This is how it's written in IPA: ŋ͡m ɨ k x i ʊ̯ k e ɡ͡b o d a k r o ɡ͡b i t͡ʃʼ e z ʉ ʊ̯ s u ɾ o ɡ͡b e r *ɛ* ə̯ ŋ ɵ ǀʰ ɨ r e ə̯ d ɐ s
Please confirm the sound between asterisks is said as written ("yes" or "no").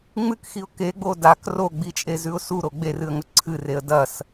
no